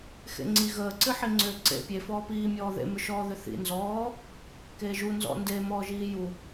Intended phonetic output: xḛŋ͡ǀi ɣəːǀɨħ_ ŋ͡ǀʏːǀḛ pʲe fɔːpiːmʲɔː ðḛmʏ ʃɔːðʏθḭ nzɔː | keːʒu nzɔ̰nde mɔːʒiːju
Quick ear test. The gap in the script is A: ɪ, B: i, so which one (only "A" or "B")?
B